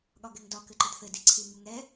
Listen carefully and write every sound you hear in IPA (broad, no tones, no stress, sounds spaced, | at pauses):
ɠ ɒ ɡ ɛ ŋ d ɒ k ɘ ǃ ɘ d θ ɘ d i ǀʰ i ŋ u ŋ ɛ